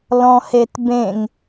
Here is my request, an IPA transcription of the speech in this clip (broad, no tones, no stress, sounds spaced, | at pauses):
l ɔ̃ h e t b ẽ ŋ